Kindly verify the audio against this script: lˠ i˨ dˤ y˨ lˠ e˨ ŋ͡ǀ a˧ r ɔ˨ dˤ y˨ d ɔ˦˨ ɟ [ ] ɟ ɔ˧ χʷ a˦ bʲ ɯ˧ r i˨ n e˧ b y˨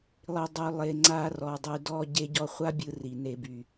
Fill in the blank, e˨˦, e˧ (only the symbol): e˧